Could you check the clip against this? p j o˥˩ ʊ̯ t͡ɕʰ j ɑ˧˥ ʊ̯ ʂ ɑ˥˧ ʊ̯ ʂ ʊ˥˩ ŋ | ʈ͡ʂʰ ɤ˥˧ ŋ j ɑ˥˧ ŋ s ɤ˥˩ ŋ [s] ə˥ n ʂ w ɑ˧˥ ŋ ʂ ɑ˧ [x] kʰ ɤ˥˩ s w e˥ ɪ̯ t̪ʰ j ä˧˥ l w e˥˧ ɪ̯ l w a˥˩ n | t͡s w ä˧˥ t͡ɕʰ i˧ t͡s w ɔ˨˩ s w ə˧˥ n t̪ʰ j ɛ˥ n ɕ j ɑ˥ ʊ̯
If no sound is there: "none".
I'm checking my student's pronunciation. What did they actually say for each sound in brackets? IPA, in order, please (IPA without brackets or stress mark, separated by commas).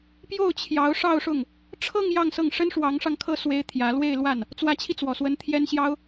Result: ʂ, ŋ